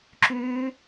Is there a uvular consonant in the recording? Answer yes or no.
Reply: no